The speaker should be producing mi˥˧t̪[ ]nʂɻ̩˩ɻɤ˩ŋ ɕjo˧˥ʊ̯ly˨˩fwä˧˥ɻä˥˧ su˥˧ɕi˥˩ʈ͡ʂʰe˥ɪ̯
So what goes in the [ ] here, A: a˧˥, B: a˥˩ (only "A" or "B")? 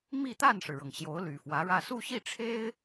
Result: B